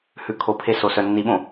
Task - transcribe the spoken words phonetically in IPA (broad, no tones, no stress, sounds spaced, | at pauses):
h ʉ kʰ o pʰ e s o s œ nː i ɓ õ